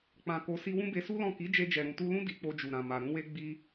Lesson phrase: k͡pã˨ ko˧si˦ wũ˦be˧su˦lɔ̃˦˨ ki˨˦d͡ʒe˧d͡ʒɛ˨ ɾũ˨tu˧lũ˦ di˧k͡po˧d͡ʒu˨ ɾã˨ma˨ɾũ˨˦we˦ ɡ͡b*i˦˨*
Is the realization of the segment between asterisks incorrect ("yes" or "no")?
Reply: yes